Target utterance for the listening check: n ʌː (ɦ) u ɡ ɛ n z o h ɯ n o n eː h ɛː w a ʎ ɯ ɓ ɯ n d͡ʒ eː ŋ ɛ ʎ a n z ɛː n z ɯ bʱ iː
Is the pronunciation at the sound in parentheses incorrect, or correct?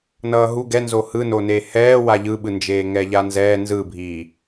correct